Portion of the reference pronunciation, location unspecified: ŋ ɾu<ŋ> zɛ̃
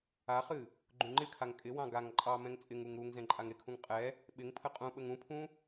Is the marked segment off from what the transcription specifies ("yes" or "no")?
no